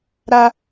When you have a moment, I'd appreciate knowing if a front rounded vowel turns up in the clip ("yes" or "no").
no